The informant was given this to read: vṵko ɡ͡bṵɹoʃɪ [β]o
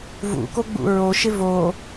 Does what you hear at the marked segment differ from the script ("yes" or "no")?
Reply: yes